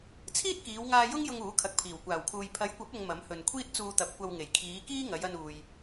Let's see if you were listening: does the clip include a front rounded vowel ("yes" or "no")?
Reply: no